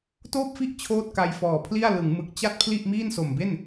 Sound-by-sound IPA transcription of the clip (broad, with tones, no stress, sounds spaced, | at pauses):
t oː˥˩ p̚ f i˥˩ ʔ t͡ɕʰ oː˥˩ t̚ k a˧ j f ɔː˨˩ pʰ l i˥˩ a̯ l ɯ˩˦ ŋ m ɯ˨˩ k̚ t͡ɕ a˥˩ t̚ pʰ l i˥˩ ʔ m iː˥˩ n s o˨˩ m b e˥˩ n